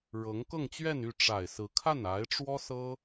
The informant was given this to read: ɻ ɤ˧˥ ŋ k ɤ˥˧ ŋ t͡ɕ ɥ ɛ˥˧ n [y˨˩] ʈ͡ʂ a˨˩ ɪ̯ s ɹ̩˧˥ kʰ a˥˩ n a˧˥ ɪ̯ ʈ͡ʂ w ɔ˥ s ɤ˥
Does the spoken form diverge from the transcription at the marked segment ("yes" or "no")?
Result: yes